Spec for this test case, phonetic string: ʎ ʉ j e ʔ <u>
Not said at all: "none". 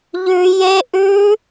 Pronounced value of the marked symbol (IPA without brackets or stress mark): ʉ